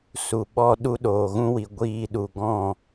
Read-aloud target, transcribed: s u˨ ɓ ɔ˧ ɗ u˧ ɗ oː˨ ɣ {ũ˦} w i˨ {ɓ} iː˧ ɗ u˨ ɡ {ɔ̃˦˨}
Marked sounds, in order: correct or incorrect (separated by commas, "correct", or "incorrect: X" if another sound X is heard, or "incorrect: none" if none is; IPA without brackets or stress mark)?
correct, incorrect: ɡʷ, correct